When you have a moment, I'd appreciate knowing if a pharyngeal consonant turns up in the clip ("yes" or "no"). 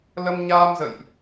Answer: no